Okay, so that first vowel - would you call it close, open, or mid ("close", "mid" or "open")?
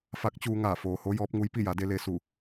open